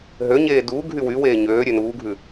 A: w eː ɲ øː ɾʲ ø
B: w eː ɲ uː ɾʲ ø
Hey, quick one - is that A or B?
A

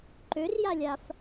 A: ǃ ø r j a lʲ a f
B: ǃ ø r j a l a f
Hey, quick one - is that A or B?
A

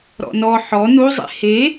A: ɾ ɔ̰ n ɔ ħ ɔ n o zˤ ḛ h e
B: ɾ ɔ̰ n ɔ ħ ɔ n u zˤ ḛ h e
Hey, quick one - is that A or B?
B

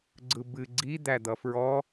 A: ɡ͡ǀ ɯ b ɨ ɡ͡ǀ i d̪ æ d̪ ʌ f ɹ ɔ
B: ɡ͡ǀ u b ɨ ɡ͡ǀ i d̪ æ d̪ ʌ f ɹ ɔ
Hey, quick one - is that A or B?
A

